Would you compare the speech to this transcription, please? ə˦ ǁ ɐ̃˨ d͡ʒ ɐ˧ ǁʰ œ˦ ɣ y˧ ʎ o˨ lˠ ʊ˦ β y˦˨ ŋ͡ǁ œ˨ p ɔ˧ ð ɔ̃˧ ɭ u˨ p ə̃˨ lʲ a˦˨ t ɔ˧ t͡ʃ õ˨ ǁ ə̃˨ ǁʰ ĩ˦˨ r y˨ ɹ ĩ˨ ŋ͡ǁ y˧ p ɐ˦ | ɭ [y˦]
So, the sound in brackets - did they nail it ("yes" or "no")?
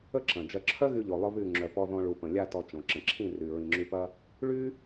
yes